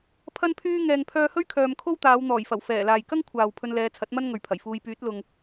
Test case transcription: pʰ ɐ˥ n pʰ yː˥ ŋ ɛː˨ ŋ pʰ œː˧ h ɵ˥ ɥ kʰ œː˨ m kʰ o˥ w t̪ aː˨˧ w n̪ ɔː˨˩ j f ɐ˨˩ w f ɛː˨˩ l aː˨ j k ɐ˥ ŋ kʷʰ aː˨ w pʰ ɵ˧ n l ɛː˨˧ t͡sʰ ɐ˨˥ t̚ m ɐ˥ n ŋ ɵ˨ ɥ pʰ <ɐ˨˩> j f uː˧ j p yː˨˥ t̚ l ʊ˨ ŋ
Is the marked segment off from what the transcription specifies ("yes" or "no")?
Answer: no